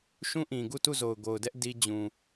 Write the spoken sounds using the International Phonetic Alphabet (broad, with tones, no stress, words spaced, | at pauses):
ʃũ˦ʔĩ˨ɡu˦˨ tu˦˨zo˨ʊ̯ɡo˨ʊ̯ dɛ˦ʔ di˦ d͡ʑũ˨